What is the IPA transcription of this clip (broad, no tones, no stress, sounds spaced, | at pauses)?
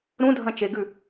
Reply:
ɾ ũ dʱ ɐ̃ t͡ʃ e ɡ ʉ